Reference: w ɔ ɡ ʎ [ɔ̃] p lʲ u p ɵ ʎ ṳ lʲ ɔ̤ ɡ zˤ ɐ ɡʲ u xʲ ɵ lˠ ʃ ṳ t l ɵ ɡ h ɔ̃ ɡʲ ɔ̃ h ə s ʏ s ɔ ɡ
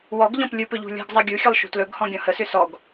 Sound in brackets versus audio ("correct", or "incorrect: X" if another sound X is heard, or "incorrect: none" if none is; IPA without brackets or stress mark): correct